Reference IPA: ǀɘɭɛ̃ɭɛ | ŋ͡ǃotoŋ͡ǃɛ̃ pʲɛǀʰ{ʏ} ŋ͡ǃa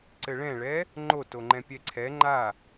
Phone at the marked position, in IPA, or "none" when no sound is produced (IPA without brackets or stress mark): ɛ